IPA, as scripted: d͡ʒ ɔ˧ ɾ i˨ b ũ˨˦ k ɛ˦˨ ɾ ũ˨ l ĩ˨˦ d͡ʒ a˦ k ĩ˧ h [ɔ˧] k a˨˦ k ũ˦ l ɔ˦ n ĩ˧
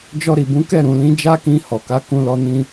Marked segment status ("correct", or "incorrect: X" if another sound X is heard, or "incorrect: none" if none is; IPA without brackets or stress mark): incorrect: ɔ˨